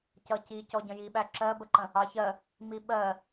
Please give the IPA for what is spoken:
c ʌ c i c ɔ ɟ ə̃ j i ɓ æ ǁ ɜ b ə ǃ ə̃ | ɑ ç ɜ | m i ɓ ɜ

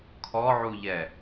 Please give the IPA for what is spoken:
kʰ ɔ ʕ u ʎ ɛ

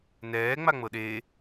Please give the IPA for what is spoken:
n ɛː ŋ͡m a ŋ͡m ɤ ɗ eː

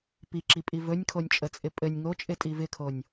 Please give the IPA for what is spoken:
p i ǁ i pʼ i v ɵ nʲ kʰ o nʲ t͡ʃʼ ə t͡sʼ ɪ pʼ ɘ nʲ ŋ o t͡ʃʼ ɪ tʼ i v ɪ kʰ o nʲ

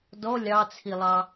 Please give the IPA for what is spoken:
d ɔ lʲ ɑ t͡sʰ i lˠ ɑ

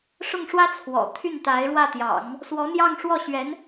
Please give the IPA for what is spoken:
ʂ ʊ˥˩ ŋ ʂ w ä˥ t͡sʰ w ɔ̰˨˩ t̪ʰ y˥˩ n t̪ a˧˥ ɪ̯ ɻ w ä˥˩ t̪ j ɑ̰˨˩˦ ŋ | s w ɔ˧˥ n̪ j ɑ˥˧ ŋ ʂ w ɔ˥˩ ɕ ɥ ɛ˧˥ n

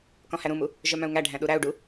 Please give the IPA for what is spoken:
k ɔ̃ h æ ɾ ũ m u | ʒ œ m œ̃ u̯ ŋ æ ɖʱ æ̃ ɗ u ɾ æ u̯ ɖ u

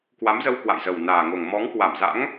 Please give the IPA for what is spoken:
k w a˨˦ m z ə˧ w k w a̰˧˨ j z ə˨˩ w n aː˨˩ ŋ o˨˩ ŋ m ɔ˨˦ ŋ k w a˧˩ m z a̰˧˥ ŋ

